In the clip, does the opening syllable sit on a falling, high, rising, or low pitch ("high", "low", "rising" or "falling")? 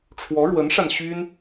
rising